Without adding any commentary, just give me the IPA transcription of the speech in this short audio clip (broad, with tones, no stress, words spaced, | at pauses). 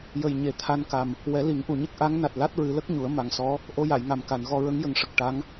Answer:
jə˨˩jɲe˨˩ t̪ʰa˧nka˨˩m | wɛ˨˩˦li˨˩˦ŋʔu˨˩˨ɲə˦˥k̚ ʔa˧˥ŋ na˨˩t̚la˦˥t̚ɹɨ˨˩˦lə˦˥k̚ ɲu˨˩˦ə̯ ma˨˩ŋsɔ˧˥ | ʔo˧ja˨˩˨jŋa˨˩m ka˨˩˨nɣɔ˧ ɹə˧˥ŋjə˨˩ŋʂə˨˩k̚ ʈa˧˥ŋ